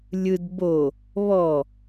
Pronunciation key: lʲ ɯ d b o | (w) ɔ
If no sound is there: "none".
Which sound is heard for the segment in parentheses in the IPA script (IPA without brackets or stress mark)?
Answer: β